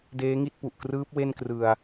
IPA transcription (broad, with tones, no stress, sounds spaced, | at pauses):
d eː˦˥ ŋ i˥˩ t̚ p u˨˩ ʔ k r ɯː˦˥ p̚ w e˥˩ n k r ɯ˧ a̯